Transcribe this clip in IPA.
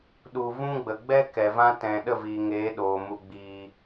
ɗ u˨ v ũ˦ ɡ͡b ə˨ ɡ͡b ɛ˦ k ɛ˨ v ã˦ t ɛ̃˨ ɗ ə˦˨ v iː˨ ŋ eː˨˦ ɗ oː˨ m u˧ ɡ͡b iː˧

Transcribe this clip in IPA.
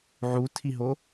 ʕ u tʰ i ɦ o

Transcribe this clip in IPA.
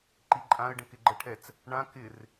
ǃ i ǃʼ ã ə̯ ɖ ə̃ k ɪ ɡ͡ǃ ə ʈʰ ɛ t͡s | ɳ ã k ɪ r

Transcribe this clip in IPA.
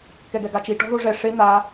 k ɛ ɡ ɛ ɡ a t͡ʃ i ʈ ɔ̤ ð o ʐ ɛ ʂ e n̪ a

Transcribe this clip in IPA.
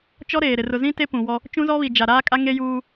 t͡ʃ ɔ˦ ɾ eː˨ ɾ ɪ˨ r ʊ˨ z ĩ˦ t e˦ p ũ˨ w ɔ˦ | t͡ʃ ũ˦ z ɔ˦ β i˨ d͡ʒ a˨ ɾ aː˦ kʼ a˦ ŋ e˦ j uː˦

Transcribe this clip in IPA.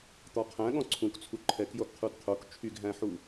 t̪ ɔ qʰ æ̃ ɠ ɔ̃ ǀʰ ũ k t͡sʰ u ǃʰ ɛ k j o ɡ qʰ u d qʰ o k t͡ʃʰ y ɡ ɦ æ̃ ħ u

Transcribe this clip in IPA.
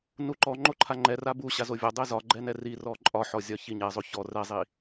n u ǃ ɔ ŋ͡ǃ o ǃʰ a ŋ͡ǃ ɛ r a b u ɕ a z o vʲ ɒ dˤ ɛ z ɒ ɡ͡ǃ ɛ n ɛ r i r ɔ ǃʼ ɒ ħ ɔ zʲ ɒ ç i ɲ ɛ zˤ o ç ɔ r ɛ zˤ i

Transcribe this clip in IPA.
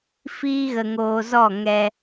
f iː˦ ɣ ə˧ ŋ oː˧ z ɔ˦˨ ŋ ɛ˧

